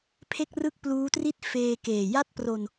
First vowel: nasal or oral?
oral